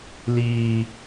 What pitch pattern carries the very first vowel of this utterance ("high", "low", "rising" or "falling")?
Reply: low